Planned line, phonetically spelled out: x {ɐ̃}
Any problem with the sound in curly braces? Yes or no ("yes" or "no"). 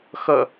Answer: yes